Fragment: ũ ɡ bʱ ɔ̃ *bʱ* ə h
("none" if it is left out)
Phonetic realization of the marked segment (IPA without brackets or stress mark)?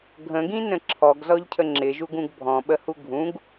ɓ